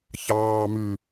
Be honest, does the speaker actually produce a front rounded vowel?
yes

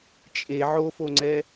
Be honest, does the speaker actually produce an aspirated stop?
no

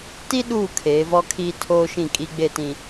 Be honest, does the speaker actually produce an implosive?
yes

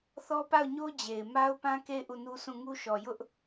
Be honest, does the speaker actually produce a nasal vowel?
yes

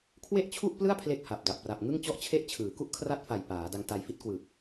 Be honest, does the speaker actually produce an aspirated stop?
yes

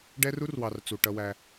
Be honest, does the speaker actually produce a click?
no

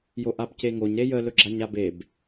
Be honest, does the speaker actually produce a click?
yes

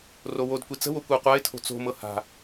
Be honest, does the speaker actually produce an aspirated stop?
yes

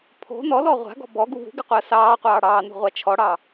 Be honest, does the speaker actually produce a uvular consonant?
yes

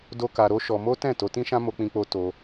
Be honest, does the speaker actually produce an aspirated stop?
no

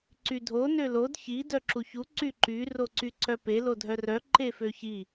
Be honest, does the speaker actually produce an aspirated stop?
no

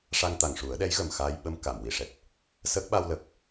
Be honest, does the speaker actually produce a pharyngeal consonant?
no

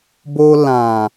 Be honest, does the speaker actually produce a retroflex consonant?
no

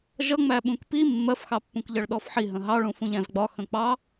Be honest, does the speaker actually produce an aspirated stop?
no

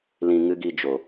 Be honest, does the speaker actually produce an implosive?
no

